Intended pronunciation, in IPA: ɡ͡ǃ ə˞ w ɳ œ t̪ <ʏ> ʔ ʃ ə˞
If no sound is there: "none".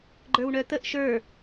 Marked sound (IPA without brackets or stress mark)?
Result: ə